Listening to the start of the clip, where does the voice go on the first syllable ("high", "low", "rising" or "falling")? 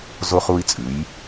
high